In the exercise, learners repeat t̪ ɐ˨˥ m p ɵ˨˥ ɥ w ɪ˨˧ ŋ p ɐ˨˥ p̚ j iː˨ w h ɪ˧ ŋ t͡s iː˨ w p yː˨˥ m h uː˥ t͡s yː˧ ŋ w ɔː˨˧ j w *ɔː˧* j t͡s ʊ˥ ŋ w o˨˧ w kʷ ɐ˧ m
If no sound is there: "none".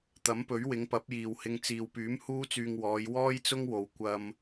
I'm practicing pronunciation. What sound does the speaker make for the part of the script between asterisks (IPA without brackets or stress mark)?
ɔː˥